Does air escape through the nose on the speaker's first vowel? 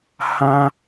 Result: yes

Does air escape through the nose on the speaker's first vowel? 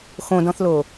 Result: yes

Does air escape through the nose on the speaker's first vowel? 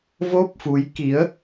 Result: no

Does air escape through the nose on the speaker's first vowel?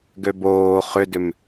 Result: no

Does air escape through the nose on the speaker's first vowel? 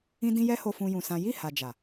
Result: yes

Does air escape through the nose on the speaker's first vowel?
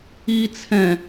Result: no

